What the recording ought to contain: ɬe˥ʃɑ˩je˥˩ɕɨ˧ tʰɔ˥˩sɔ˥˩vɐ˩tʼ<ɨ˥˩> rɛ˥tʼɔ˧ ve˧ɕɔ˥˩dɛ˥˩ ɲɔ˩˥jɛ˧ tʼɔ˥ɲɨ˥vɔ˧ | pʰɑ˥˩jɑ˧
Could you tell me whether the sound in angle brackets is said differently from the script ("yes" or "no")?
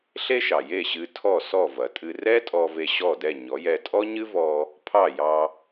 yes